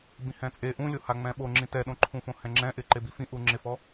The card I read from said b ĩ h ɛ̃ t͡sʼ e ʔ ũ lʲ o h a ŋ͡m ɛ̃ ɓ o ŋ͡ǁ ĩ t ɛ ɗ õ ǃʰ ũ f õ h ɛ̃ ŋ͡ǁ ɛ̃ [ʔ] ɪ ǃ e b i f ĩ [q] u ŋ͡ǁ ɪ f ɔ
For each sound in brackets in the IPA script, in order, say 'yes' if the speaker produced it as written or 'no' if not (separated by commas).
yes, no